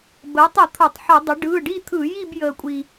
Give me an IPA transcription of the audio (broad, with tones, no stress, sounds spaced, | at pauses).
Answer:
b əː˩˥ tˤ ə˧˩˧ t̪ʰ o˧˩˧ tˤ ħ ə˧˩˧ dˤ ə˩˥ ɖ ɯː˩˧˩ ɖ i˥˧ t̪ʰ ɯ˧˩˧ j i˥˧ b j əː˧ kʷʼ i˧